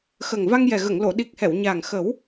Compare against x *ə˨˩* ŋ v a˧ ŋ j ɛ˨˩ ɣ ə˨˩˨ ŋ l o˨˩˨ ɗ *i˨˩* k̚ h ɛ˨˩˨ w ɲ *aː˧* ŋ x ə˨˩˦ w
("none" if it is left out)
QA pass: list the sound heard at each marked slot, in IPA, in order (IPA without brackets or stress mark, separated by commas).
ə˨˩, i˨˩, aː˨˩